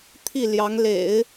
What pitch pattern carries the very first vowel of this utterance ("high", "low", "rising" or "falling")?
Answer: falling